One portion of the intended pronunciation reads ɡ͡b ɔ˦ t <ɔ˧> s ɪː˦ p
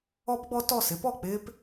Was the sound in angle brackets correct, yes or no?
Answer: no